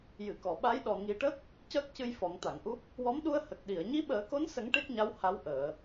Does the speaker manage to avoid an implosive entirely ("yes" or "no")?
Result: no